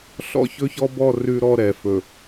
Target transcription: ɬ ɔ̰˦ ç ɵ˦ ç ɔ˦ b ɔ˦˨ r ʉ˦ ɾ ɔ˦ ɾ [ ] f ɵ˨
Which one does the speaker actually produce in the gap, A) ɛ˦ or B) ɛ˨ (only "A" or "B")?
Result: B